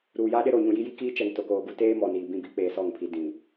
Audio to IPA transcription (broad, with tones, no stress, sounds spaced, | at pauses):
ɾ uː˨ j a˦ ɗ ɪ˦ ɾ o˨ ɲ ũ˨ j i˦ j i˦ k iː˦ t͡ʃ ɛ˨ ŋ t o˨ k oː˨ ɡ u˦ t eː˦ m ɔ˨ n iː˨ b ĩ˦˨ b i˦ k͡p eː˨ s ɔ˦˨ ŋ pʰ i˨ d ĩ˨